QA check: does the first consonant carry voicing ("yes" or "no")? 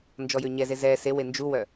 yes